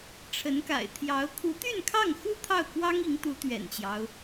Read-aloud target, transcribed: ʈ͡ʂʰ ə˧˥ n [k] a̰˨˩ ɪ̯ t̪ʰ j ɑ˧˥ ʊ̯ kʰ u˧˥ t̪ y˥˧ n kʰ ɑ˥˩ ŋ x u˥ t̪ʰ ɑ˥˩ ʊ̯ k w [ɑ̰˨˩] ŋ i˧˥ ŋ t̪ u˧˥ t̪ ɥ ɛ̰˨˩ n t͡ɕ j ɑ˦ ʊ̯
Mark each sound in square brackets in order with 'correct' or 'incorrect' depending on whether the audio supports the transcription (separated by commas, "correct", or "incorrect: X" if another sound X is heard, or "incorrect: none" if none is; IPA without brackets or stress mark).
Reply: correct, incorrect: ɑ˥